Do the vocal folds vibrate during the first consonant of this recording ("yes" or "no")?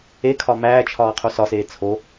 no